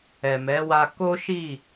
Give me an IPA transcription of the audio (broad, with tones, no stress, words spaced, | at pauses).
ɛ˨mɛ˨˦wa˧ ko˦ʃi˦˨